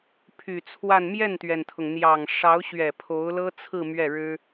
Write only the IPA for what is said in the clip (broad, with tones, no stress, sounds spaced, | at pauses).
pʰ y˨˩ t͡sʰ w a˥˧ n m j ɛ˥˩ n t̪ ɥ ɛ˩ n t̪ʰ ʊ˩ ŋ n̪ j ɑ˨˩ ŋ ʂ ɑ˧˥ ʊ̯ ɕ ɥ ɛ˨˩ pʰ o˧˥ ʊ̯ l ɤ˥ t͡sʰ ɹ̩˥˧ m ɥ ɛ˥˩ ɻ ɻ̩˥